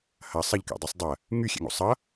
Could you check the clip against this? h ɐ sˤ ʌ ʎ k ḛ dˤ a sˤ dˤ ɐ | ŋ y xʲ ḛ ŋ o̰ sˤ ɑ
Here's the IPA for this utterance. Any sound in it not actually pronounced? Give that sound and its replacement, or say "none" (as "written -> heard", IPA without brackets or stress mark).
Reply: ɑ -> ʌ